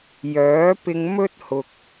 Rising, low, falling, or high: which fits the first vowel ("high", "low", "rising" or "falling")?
rising